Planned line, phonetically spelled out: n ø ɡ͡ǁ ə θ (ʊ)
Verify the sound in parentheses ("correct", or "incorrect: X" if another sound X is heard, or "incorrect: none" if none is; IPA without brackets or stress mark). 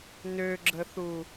incorrect: u